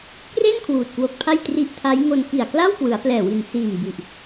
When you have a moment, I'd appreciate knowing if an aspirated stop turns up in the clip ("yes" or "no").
yes